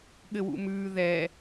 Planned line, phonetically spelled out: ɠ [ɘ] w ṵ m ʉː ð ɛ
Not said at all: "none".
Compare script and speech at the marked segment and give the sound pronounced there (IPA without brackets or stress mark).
ɘ